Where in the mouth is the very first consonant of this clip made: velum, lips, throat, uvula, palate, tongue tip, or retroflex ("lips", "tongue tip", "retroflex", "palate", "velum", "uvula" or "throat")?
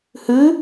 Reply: throat